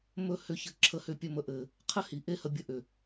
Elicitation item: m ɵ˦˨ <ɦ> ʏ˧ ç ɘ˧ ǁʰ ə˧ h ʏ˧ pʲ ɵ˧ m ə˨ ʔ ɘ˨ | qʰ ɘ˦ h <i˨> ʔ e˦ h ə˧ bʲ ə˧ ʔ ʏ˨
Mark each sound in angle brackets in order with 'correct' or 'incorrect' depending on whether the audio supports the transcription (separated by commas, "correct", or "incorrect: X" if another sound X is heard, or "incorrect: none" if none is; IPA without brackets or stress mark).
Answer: incorrect: h, correct